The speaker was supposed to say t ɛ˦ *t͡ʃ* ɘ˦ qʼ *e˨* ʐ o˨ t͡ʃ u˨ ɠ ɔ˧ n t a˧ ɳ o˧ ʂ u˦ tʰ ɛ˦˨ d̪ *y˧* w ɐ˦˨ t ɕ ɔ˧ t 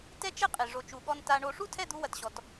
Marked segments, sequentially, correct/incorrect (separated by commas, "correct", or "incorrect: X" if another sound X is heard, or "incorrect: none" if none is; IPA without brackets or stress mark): correct, correct, incorrect: u˧